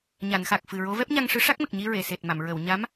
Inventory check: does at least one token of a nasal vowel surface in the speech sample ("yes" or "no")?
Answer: no